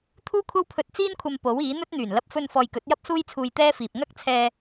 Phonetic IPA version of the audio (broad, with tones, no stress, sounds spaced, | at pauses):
t̪ʰ uː˥ kʷʰ ɐ˥ w pʰ ɵ˧ t̚ t͡s iː˥ n kʷʰ ɐ˧ m p o˨˥ w iː˨˥ n̪ ɵ˥ t̚ n̪ yː˨˩ n l ɐ˧ p̚ f ɵ˧ n f ɔː˨ j k ɵ˨˥ t̚ j ɐ˥ p̚ s uː˥ j t͡sʰ uː˧ j t̪ ɛː˥ f iː˨ p̚ ŋ ɐ˥ k̚ t͡sʰ ɛː˧